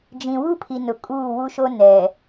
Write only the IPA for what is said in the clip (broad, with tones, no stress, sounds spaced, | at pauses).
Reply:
d͡ʒ ĩ˨ w u˦ pʰ i˨ n ʊ˨ kʼ uː˦˨ w u˦ ʃ o˦ n ɛ˨